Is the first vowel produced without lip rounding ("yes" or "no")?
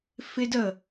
yes